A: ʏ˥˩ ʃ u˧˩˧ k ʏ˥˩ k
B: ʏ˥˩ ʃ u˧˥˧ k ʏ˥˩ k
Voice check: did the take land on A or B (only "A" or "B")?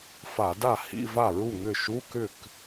B